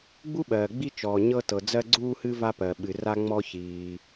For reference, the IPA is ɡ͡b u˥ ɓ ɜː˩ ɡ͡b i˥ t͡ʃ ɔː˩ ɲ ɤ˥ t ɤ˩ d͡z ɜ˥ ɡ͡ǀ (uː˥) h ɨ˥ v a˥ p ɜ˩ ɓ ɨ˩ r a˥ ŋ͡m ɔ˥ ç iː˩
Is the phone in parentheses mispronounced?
no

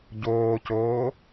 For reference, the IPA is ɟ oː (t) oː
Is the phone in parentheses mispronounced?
yes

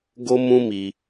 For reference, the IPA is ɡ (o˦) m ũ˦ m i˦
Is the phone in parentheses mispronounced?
no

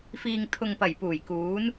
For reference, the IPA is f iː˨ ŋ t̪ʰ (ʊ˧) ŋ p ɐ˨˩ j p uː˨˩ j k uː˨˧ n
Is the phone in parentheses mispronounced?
yes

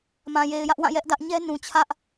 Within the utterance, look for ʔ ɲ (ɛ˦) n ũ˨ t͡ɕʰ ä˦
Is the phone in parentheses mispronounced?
no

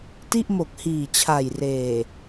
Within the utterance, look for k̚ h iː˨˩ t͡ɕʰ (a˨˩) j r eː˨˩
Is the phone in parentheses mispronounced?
no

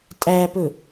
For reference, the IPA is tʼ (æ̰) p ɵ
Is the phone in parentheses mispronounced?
yes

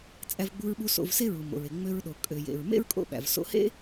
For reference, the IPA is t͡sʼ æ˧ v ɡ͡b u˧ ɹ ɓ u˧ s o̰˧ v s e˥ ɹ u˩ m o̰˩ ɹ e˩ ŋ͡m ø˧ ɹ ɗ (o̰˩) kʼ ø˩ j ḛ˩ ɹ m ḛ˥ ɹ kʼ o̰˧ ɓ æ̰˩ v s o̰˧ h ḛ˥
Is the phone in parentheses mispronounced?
yes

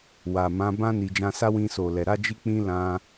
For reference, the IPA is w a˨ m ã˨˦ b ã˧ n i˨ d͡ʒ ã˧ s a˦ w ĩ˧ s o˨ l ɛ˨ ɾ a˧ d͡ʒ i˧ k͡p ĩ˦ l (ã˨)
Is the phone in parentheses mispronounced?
yes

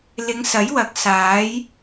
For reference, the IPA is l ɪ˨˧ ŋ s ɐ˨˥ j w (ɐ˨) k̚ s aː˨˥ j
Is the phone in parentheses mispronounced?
yes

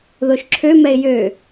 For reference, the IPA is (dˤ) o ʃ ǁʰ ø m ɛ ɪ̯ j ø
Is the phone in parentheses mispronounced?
yes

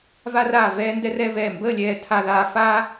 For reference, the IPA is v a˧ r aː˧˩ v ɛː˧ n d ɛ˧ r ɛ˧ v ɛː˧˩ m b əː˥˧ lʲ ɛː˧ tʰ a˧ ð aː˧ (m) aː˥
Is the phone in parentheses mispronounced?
yes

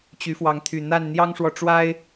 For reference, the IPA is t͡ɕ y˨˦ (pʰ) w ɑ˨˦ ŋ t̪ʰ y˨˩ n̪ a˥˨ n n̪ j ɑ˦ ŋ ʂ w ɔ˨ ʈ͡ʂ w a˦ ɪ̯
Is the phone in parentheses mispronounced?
yes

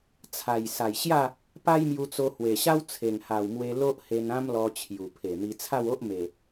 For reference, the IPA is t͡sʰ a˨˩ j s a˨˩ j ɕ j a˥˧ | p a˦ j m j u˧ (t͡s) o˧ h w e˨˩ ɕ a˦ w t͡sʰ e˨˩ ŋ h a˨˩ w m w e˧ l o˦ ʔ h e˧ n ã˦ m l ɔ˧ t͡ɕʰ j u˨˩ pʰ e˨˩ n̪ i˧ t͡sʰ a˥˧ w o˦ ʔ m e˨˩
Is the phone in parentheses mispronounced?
no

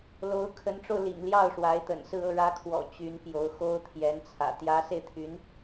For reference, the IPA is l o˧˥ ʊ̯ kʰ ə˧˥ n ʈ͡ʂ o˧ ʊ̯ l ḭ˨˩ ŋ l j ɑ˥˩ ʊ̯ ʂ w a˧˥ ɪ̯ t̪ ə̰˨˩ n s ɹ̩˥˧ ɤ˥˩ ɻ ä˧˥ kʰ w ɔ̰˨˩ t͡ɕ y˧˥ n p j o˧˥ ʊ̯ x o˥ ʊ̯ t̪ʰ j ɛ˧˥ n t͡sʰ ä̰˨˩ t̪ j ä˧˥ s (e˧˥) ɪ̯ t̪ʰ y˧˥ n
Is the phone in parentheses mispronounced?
yes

